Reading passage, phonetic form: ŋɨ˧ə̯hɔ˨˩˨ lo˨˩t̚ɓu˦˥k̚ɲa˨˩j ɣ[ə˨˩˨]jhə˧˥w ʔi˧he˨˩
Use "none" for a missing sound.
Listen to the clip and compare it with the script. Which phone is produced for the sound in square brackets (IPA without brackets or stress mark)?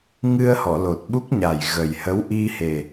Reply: ə˨˩